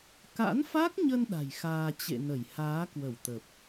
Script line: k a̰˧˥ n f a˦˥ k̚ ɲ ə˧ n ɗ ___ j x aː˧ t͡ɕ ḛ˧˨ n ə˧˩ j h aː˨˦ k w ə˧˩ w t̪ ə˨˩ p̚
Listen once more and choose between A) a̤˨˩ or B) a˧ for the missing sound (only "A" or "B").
A